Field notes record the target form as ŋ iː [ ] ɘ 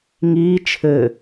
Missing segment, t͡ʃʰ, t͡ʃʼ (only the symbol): t͡ʃʰ